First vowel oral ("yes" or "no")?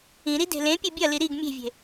no